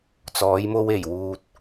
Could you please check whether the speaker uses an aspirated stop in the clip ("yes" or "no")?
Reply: no